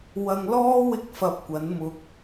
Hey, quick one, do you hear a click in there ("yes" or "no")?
no